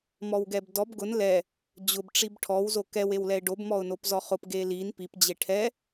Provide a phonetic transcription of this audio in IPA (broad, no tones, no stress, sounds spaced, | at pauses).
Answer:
m ɔ w ɡ ɛ b d ɔ b ɡ ʊ n l ɛ | d͡ʑ ʊ b ʈ͡ʂ i b ʈʰ ɔ w z o k ɛ w e w l ɛ ɪ̯ ɖ o b m ɔ ʊ̯ n o p z ɔ χ ʊ p ɡ e l i n p i p d͡ʑ e ʈʰ ɛ